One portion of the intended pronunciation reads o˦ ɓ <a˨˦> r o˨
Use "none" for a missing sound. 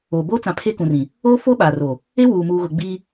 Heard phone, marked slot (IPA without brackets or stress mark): a˨